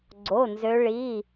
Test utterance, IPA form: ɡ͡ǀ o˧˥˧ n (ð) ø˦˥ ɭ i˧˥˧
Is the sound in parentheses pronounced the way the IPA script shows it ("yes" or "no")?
no